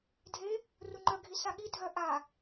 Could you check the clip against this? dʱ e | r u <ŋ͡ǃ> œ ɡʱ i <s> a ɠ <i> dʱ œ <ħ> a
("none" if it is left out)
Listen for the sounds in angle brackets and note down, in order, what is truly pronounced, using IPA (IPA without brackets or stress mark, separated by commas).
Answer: ŋ͡ǃ, s, i, ʔ